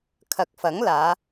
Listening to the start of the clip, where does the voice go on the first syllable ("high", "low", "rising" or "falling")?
low